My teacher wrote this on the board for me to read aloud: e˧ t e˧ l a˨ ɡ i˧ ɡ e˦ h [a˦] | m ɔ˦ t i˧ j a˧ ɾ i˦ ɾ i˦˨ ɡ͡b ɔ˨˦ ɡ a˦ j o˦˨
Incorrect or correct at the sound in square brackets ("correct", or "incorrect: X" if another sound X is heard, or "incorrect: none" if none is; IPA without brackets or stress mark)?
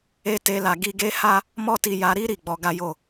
correct